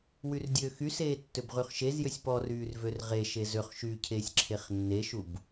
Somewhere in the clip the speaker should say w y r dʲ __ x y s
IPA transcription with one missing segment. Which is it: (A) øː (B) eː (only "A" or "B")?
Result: A